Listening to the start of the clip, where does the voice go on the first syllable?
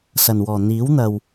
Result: low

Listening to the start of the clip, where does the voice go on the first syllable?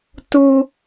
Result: high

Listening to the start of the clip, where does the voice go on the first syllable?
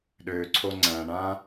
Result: low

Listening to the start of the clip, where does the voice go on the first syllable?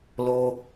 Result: high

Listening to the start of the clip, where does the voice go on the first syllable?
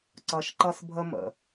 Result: low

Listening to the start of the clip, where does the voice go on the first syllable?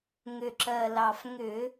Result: low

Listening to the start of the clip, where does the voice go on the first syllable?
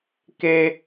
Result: high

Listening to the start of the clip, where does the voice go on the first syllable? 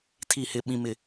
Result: falling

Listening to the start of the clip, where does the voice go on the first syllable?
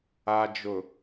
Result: low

